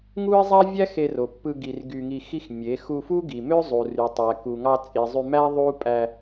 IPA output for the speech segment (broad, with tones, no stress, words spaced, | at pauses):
ŋu˦ɪ̯zˤæ˦vʲæ˦ xe˧ro˨pːɯ˧ ɡi˧r ɡy˧ŋi˧xi˦xmʲe˨˦ xu˧fu˦ɡi˨mø˦ zˤu˨ry˨tˤæ˨ ku˨ŋɑ˧t͡sʼi˨ zˤy˧mæ˦ ðˤu˦ pʼæ˧